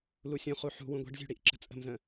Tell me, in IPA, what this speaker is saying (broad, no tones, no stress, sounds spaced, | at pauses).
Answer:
l u sʲ ũ χ u ħ ṳ w ũ ɡʷ ɛ̤ ɖ zʲ ṳ ɽ i ʔ ǁ ə̤ t͡sʼ ə̤ m z ə̃